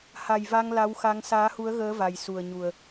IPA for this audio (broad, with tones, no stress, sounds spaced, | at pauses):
h a˨˩ j v a˧ ŋ l a˨˦ w x a˨˦ ŋ s aː˨˦ h u˨˦ ə̯ ɣ əː˨˦ v a˨˩ j s u˨˩ ə̯ ɲ u˨˩ ə̯